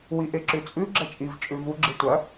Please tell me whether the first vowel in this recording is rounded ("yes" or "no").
no